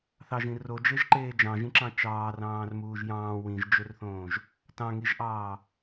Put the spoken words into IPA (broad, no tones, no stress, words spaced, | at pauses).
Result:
θɑʒĩ rod͡ʒeʒǃeː d͡ʒɑ̃ʒĩǁɑ̃ t͡ʃɑːrɑ̃ːrmuːʒ jɑ̃ː wĩʒd͡ʒørθõːʒ | tɑ̃ŋiʒʔɑː